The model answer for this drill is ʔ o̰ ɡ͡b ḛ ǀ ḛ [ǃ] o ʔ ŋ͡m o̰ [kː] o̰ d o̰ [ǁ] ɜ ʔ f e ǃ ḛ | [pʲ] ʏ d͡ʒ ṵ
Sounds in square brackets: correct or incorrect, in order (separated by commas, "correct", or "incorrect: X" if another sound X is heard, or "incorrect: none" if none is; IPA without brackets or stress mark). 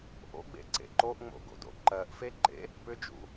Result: correct, incorrect: ɡ, incorrect: ǃ, incorrect: p